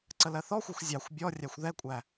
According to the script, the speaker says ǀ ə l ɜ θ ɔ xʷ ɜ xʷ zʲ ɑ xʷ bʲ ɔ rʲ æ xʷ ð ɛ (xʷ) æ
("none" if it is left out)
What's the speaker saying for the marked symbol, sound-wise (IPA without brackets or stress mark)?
kʷʼ